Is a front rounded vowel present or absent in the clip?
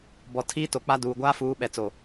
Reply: absent